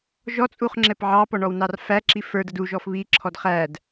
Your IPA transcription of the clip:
ʒ ɔ t͡sʼ u χ ŋ͡ǁ ɛ p ʕ ɑ p ɔ ɳ ɔ w n ɑ r f æ ǁ i f ə˞ d ə d u ʒ ɔ f β i ǁʰ ɔ d χ æ d

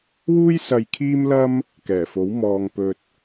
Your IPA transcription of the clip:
w uː˥ j s ɐ˧ j kʰ iː˥ m l ɐ˥ m | k ɛː˨˩ f o˨˥ w m ɔː˨ ŋ p ɵ˨ t̚

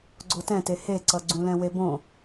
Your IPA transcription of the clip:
ɡ͡ǀ o t ɛ̃ t e h e ǀ ʌ ɡ͡ǀ ũ l ɛ̃ w e b õ

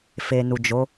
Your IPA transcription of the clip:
f e˨ n u˨ d͡ʒ o˨˦

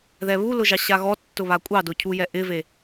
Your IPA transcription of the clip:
ð ɛ β u l ʊ ʒ ɑ ɕ a ɣ ɔ tː ʊ β a kʷʼ ɑ d ʊ cʰ u j ɛ ʔ ɪ v e

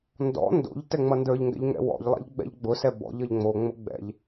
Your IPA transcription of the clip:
n d ɔ̰ n d o̰ ʎ t ɛ ŋ͡m ʌ n d ə˞ ʎ ŋ ɡ ɛ̰ ʎ ŋ ɛ̰ w ɔ̰ ʎ lˠ ɛ̰ ʎ ɡ͡b ɛ̰ ʎ ɡ͡b ʊ s ɛ b ɔ̰ ʎ ʌ ʎ ŋ͡m o ŋ͡m ʊ ɡ͡b ɛ̰ ʎ

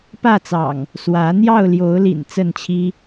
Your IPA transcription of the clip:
p ä˥˨ t͡s ɑ̰˨˩ ŋ | s w ä˨˦ n̪ j ɑ˥˨ ʊ̯ l j o˨˦ ʊ̯ l ḭ˨˩ n t͡s ə˥˨ n t͡ɕʰ i˦

